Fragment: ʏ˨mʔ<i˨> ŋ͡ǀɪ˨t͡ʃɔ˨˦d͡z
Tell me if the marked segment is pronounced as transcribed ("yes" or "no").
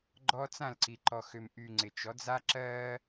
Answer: no